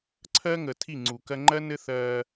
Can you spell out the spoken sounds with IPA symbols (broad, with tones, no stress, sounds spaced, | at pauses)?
ǀʰ ɜː˦ ŋ əː˨ tʰ i˦˨ ŋ͡ǀ u˨ k ɜ˦ ŋ͡ǃ ɜ˦ n ɘ˦ θ ɜː˦